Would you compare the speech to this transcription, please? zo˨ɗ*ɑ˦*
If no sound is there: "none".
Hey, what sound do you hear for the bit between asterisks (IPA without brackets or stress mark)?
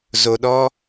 ɔ˦